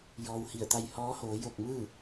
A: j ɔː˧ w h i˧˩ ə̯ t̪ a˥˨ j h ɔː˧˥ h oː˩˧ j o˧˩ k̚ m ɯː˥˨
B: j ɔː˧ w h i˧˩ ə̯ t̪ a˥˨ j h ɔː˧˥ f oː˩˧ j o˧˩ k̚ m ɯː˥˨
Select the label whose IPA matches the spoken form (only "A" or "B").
A